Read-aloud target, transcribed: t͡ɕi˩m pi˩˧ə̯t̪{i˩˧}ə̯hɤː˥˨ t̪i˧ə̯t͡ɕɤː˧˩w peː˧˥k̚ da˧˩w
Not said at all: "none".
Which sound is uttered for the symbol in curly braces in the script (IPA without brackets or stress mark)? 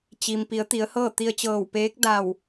i˩˧